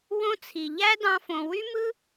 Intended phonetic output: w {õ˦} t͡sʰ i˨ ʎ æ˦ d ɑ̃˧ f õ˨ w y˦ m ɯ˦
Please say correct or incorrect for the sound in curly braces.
correct